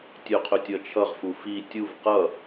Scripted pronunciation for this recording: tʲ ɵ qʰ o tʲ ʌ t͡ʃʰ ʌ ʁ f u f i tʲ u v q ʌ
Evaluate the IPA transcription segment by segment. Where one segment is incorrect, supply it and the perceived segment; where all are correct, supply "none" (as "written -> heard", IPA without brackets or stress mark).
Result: o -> ɵ